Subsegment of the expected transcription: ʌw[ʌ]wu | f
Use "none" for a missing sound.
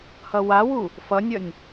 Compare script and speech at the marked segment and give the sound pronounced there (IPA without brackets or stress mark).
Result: a